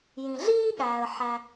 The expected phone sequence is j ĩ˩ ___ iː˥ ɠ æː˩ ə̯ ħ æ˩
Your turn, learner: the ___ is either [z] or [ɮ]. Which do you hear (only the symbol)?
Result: ɮ